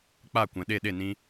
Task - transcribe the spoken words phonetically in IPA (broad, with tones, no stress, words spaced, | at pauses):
k͡pa˦˨kʷɛ̃˨ ɗe˦˨ɗe˦˨nĩ˧